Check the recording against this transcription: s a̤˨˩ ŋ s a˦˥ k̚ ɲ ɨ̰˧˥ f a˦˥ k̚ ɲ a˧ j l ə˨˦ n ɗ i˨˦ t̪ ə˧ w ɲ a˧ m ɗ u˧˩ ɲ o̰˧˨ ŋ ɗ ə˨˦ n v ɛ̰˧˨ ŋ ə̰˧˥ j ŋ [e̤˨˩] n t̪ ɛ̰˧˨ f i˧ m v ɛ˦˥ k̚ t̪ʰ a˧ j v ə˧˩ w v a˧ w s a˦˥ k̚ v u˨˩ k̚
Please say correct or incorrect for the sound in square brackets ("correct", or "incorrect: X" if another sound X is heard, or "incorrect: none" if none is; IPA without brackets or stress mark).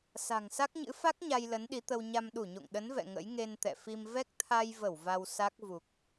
incorrect: e˧